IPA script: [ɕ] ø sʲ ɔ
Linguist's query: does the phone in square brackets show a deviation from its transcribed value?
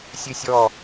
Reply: yes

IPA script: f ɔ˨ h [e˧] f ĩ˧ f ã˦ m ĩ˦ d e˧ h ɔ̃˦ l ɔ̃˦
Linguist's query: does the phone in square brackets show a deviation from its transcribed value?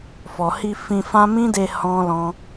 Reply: yes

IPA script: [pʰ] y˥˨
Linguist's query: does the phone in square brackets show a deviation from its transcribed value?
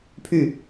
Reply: no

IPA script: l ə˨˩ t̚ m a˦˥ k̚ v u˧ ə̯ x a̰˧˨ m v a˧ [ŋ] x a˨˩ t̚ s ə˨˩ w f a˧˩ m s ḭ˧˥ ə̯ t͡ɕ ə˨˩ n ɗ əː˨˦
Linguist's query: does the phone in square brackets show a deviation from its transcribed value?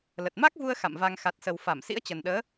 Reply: no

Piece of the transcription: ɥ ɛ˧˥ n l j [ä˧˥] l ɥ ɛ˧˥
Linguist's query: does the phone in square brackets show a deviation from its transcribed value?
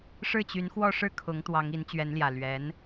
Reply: yes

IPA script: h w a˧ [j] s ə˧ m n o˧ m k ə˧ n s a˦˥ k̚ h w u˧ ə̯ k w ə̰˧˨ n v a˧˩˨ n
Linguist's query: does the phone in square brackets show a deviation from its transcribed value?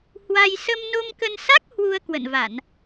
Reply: no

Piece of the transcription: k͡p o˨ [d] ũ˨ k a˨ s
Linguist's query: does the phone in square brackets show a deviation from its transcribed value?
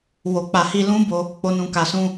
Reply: yes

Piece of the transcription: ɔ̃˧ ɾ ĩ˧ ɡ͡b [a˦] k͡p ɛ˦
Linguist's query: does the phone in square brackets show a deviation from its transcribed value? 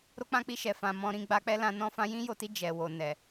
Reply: yes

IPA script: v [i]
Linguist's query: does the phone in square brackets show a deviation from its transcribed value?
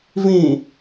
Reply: yes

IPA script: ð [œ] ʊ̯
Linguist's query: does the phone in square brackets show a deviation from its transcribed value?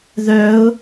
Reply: no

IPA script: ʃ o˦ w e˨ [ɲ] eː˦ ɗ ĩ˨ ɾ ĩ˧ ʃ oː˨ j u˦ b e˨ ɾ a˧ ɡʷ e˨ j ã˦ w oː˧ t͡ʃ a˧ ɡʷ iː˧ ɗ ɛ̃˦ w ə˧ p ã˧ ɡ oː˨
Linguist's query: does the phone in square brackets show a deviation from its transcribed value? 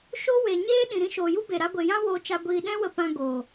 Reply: no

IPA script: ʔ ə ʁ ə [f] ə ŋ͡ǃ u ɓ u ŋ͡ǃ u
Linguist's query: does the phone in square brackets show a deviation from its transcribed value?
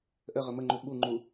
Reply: yes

